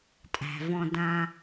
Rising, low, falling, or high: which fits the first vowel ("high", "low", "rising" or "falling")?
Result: low